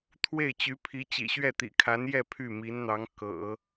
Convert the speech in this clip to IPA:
t̪ʰwe˥˩ɪ̯t͡ɕy˧˥pʰi˧˥ t͡ɕḭ˨˩ɕɥɛ˥˩t̪ḭ˨˩kʰa˧˥n jɛ˥˧ pʰy˥˩mi˧˥nn̪ɑ˧˥ŋ kɤ̰˨˩˦

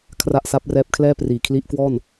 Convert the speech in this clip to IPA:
kʰra˥˩ʔ sa˦˥p̚rɛː˦˥p̚ kʰlɛː˥˩ priː˨˩kʰli˦˥ʔkwɔː˥˩n

